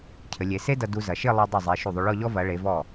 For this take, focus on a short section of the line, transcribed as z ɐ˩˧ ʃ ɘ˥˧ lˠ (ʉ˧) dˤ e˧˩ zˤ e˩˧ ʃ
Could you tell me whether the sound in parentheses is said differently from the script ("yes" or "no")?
no